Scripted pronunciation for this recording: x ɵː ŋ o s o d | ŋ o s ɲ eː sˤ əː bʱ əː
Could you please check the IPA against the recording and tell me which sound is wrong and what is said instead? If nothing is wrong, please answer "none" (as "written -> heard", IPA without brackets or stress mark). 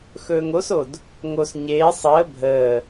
none